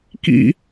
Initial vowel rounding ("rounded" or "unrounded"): unrounded